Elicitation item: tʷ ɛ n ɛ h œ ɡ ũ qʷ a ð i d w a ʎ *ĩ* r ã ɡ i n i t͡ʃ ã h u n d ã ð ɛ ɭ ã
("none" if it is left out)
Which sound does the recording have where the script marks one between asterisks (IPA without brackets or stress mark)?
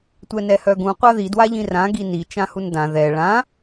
ĩ